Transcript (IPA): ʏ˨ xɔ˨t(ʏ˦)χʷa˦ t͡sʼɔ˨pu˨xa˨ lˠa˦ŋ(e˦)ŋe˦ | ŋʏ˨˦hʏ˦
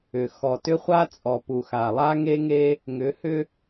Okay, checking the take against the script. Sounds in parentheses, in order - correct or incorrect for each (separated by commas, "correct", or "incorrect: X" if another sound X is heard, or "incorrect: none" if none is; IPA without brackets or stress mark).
correct, correct